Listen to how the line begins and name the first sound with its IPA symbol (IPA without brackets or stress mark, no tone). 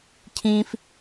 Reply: cʰ